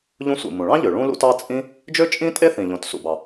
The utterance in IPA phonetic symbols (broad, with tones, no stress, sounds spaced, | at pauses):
ʎ ũ˥ sʷ ḭ˩ m ũ˩ ɭ ɑ̃˥ ʎ ø˩ ɭ ũ˥ l ṵ˥ t ɑ˥ t͡sʼ ĩ˥ | d͡ʒ ø˥ t͡ʃʼ ĩ˥ tʼ e˥ θ ĩ˩ ʎ õ˩ t s ṵ˩ b ɑ˩